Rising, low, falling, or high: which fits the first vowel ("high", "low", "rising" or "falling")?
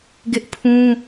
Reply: high